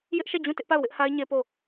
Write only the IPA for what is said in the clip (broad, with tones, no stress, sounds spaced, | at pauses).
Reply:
j ɪ˦ ʔ ʃ ɛ˦˨ d͡ʑ ũ˦˨ t ɪ˦ ʔ p a˦˨ ʊ̯ w ɪ˦ ʔ h a˦ ɪ̯ ɲ e˦ p o˦˨